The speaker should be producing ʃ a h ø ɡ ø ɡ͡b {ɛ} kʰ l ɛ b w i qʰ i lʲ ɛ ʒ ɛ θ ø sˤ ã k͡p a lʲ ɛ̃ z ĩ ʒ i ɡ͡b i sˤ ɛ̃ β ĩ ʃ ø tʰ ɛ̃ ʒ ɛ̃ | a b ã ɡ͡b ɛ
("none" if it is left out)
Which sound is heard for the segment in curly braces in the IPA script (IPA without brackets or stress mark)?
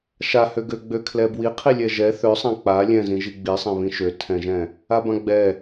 ø